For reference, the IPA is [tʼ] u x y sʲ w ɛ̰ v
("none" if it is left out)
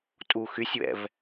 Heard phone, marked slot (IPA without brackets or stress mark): tʼ